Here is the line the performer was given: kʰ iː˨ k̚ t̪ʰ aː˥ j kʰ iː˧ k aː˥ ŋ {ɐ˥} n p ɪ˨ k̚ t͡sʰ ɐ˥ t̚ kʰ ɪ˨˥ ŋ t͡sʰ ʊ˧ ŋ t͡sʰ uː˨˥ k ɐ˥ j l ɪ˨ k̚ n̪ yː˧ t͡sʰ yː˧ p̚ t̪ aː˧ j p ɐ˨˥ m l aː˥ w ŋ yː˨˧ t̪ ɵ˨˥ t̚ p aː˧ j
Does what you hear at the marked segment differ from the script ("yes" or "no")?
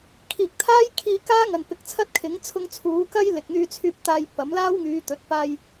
yes